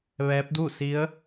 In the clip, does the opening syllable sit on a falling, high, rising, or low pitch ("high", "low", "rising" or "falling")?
rising